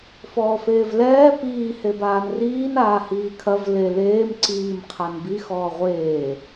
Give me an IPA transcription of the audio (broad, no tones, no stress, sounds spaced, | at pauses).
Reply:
f ɔː f eː v l ɛː p iː h e b aː n r iː n aː h iː kʰ ɐ v l e l eː m ǀ iː m qʰ a n b i x ɔː ʁʷ eː